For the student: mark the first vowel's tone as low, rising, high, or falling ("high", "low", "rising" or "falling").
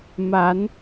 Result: rising